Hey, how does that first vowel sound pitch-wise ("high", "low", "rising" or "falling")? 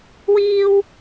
high